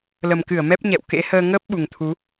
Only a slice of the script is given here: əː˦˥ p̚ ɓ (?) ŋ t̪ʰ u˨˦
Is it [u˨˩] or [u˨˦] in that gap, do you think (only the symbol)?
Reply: u˨˩